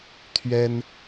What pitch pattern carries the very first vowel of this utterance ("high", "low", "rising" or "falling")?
high